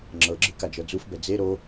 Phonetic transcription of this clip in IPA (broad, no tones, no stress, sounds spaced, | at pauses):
ŋ͡ǁ ɤ ɡ͡ǁ ɯ k a d͡ʒ ɤ d͡z u f b ɛ d͡z e ɾ o